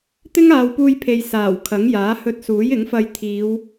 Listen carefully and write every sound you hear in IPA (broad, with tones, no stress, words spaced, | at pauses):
t̪ɪ˥ŋaː˨w puː˧jpʰe˨j saː˨˩wkʰɐ˨˥ŋjaː˨˥ hɵ˧t̚suː˨˥jɪ˨˥ŋfɐ˧j t̪ʰiː˨˧w